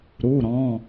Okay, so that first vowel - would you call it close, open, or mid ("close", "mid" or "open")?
close